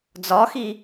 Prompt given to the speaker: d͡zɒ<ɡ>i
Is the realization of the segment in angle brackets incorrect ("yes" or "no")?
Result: yes